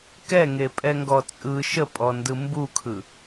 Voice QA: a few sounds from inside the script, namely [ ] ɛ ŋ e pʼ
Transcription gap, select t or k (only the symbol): k